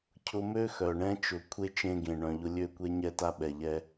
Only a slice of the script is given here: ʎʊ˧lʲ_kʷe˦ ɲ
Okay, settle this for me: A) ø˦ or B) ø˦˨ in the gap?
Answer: B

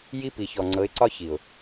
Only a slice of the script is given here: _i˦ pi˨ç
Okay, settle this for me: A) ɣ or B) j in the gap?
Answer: B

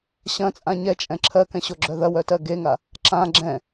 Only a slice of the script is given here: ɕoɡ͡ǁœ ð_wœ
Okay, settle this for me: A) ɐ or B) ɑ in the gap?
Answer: A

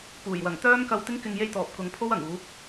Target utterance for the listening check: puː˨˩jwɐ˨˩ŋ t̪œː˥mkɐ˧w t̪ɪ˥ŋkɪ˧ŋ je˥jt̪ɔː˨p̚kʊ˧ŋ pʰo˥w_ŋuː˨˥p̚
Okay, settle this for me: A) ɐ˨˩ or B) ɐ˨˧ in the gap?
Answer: A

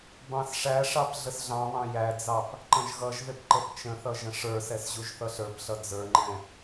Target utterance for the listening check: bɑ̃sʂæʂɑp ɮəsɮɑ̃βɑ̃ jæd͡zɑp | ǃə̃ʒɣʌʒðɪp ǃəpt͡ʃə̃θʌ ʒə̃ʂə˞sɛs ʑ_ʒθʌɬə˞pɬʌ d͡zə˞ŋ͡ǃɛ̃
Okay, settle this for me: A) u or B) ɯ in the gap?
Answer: A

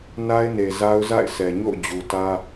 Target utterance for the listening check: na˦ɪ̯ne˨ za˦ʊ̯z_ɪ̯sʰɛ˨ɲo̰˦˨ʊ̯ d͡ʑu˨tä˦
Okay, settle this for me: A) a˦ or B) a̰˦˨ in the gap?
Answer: B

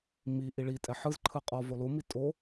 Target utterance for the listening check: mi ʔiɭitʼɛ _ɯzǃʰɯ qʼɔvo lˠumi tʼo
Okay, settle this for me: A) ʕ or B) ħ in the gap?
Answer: B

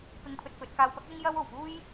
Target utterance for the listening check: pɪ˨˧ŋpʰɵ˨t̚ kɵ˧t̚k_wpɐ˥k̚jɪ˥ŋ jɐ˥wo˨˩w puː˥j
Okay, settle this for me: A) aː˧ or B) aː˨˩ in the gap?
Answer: A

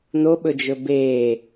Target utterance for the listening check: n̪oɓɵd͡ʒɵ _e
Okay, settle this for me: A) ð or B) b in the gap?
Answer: B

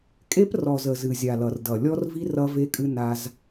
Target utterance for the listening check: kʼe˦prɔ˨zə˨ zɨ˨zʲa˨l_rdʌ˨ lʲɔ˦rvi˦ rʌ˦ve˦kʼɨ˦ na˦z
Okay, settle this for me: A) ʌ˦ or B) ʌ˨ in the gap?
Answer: B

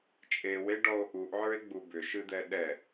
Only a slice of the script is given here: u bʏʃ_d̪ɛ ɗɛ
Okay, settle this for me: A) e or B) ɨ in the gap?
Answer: B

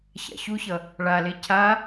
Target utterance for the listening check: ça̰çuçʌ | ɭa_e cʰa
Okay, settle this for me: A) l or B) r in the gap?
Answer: A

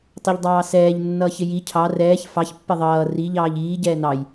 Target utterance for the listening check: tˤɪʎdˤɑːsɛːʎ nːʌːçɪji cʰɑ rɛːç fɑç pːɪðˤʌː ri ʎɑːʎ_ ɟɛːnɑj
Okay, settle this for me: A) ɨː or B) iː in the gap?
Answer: B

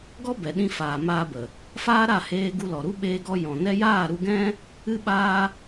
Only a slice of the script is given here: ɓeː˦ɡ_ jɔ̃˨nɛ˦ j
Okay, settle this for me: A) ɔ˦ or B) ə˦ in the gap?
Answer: A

